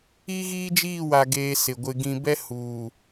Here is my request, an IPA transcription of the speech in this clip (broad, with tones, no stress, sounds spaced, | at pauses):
i˦ ɣ iː˦ d͡ʒ iː˦˨ w a˨ ɡ eː˦ s ɪ˨ ɡʷ ɪ˦ ɡ ĩ˨ b ɛ˦ h uː˨